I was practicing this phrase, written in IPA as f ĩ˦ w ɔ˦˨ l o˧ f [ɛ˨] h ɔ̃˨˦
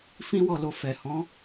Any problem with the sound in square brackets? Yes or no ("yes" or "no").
no